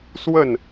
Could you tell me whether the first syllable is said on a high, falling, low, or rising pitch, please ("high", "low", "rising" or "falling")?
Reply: falling